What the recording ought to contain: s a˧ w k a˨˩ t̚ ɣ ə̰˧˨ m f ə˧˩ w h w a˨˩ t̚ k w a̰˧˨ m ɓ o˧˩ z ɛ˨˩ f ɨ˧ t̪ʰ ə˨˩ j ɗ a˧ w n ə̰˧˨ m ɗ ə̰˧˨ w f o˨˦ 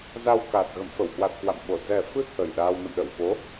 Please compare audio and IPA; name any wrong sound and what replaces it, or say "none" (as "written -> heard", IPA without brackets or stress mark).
s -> z